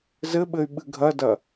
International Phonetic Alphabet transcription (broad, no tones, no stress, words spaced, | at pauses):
zɘɓɘy̯ ɓɨɡʱɐdɐ